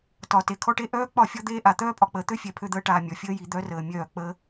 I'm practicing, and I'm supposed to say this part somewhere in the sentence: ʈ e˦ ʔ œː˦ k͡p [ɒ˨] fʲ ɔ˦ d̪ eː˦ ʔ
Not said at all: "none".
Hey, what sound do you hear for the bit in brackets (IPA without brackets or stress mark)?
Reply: ɒ˦˨